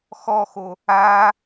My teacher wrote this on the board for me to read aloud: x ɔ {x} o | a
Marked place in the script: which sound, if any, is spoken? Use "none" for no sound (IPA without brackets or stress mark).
x